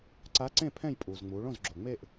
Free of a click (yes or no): no